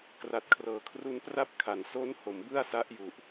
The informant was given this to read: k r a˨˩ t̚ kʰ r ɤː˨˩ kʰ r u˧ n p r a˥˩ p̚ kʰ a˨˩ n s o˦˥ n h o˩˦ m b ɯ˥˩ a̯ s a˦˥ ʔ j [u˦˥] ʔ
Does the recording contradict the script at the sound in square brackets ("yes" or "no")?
yes